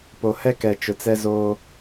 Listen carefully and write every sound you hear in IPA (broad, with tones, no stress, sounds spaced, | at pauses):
p o˨ h ɛ˦ k ɛ˨ t͡ʃ ʊ˨ t͡s ɛ˦ z oː˦